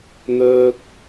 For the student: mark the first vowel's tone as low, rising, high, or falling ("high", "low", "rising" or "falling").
high